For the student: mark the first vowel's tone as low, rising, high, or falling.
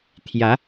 rising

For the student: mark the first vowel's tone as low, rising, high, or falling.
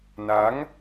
rising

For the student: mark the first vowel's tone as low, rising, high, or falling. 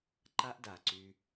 high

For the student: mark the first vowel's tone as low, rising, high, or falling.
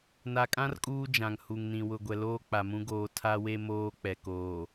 low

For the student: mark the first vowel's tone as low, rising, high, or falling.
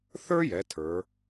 high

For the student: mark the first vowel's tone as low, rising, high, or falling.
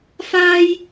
high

